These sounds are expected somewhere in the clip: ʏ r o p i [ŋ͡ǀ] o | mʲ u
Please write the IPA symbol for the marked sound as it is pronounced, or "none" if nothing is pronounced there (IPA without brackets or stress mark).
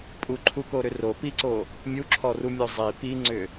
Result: ǀ